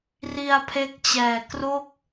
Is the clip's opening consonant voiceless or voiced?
voiced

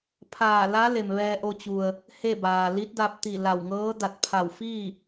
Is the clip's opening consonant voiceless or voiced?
voiceless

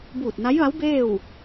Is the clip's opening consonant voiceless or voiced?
voiced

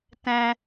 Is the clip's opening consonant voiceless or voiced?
voiceless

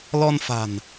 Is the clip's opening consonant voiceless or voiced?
voiced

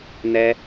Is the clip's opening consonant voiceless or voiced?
voiced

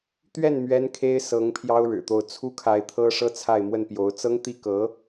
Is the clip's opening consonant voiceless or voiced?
voiceless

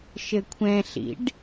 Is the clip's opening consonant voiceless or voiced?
voiceless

